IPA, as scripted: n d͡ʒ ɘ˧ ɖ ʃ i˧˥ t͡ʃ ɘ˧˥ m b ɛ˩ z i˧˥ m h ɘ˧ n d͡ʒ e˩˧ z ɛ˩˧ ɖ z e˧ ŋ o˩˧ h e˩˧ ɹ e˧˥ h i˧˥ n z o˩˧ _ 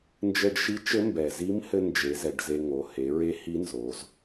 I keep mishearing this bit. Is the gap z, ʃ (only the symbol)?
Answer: z